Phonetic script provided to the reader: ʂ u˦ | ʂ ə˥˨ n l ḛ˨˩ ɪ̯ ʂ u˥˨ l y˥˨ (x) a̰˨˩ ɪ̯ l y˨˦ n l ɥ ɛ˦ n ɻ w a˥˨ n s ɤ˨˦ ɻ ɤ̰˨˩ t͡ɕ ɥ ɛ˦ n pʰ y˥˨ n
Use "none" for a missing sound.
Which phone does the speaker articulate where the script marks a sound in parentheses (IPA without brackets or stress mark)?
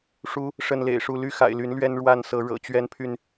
x